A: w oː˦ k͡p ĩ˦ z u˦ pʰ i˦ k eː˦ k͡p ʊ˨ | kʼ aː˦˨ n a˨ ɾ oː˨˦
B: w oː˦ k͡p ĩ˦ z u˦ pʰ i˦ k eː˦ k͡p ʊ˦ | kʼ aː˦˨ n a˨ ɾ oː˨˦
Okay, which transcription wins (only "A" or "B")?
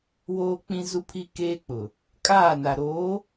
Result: A